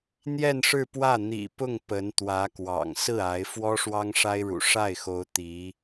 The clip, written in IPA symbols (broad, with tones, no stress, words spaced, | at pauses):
n̪jɛ˥˧nʂɻ̩˥˧pwä˥˩ n̪ḭ˨˩pʊ˥˩ŋ pə˧˥nt̪wä˧˥kwɑ̰˨˩ŋ sɹ̩˥˩ a˧˥ɪ̯ fwɔ˥ʂwɑ˥ŋʂa˥ɪ̯ɻṵ˨˩ ʂa˥˩ɪ̯xo˧˥ʊ̯ t̪i˧˥